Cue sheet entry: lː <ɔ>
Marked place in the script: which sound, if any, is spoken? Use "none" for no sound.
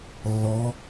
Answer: ɔ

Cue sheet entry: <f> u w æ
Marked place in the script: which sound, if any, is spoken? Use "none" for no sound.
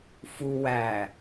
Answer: f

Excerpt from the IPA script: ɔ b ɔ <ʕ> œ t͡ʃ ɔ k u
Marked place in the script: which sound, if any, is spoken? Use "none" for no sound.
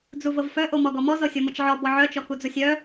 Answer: ʕ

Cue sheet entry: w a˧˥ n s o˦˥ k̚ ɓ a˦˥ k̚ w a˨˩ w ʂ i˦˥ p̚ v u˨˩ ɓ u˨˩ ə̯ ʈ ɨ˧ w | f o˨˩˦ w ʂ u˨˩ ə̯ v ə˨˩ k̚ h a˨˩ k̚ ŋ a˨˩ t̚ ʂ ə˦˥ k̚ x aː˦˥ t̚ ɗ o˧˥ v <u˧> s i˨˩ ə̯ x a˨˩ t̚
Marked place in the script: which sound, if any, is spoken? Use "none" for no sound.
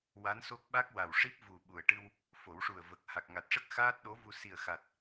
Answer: u˧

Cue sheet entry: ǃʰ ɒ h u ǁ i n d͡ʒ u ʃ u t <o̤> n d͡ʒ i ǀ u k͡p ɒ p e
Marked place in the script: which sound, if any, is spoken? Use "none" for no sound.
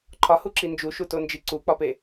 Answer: o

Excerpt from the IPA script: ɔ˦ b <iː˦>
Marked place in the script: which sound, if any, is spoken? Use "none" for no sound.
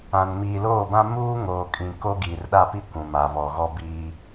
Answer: iː˦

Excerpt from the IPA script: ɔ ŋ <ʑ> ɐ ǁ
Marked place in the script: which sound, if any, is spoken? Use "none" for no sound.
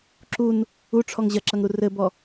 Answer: ʑ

